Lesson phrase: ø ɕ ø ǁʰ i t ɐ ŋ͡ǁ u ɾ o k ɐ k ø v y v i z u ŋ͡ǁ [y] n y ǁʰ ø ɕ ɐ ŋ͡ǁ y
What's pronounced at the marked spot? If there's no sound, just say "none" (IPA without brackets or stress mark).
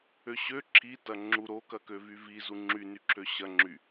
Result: y